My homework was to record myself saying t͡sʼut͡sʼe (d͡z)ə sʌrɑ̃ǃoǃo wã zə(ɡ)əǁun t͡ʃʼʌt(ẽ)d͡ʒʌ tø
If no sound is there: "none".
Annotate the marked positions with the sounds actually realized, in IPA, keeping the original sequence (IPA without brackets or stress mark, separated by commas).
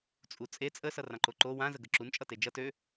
t͡sʼ, ɡ, e